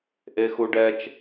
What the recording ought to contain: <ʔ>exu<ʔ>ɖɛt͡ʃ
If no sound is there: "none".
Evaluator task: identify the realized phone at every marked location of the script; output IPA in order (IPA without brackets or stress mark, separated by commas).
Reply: ʔ, none